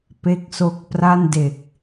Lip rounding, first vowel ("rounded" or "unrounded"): unrounded